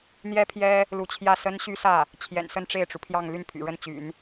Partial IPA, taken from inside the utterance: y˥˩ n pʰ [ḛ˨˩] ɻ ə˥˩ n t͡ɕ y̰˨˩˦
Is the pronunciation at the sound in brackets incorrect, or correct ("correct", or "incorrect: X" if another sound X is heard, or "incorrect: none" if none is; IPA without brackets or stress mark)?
incorrect: y̰˨˩